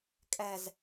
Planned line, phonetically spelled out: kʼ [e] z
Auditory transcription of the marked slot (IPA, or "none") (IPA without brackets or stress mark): ɛ